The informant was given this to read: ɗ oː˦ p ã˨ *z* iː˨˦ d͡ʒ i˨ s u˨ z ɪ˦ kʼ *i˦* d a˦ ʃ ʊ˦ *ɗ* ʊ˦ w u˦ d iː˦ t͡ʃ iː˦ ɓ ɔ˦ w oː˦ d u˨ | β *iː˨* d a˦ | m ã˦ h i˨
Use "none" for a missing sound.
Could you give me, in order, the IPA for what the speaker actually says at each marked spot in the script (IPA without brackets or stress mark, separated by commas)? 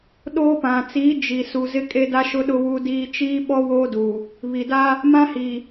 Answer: t͡s, e˦, ɗ, i˨